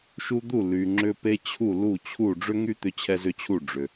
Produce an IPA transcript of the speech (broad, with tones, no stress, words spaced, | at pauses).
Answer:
ʃu˦d̪u˥˩ ly˨ŋ͡ǁʏ˦ pe˦ t͡ɕʰu˥˩ lu˥˩t͡ɕʰu˥˩ ɖ͡ʐʏ˦ŋy˦ t̪ʏ˦t͡ɕʰɛ˦zʏ˦t͡ɕʰu˥˩ ɖ͡ʐʏ˨